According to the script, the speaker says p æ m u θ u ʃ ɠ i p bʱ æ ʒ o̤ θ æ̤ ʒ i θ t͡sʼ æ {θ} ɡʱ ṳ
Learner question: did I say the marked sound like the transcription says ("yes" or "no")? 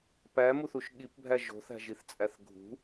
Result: yes